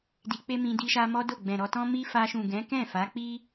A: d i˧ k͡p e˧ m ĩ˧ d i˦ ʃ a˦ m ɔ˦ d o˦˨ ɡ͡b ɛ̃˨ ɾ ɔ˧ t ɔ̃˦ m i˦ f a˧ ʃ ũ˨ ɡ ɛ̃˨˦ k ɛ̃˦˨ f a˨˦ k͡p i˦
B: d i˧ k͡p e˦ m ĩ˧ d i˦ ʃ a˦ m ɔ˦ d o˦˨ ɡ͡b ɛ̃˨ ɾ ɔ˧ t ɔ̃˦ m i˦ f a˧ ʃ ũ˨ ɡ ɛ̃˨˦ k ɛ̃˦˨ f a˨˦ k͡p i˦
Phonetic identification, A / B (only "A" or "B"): B